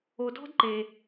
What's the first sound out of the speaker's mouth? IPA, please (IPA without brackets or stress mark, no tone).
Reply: o